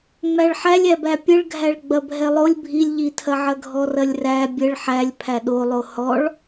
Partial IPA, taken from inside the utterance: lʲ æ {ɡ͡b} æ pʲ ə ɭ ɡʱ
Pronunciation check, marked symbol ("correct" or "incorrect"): incorrect